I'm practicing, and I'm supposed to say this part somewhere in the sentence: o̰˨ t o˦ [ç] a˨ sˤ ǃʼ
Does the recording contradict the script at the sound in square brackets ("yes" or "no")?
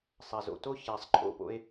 no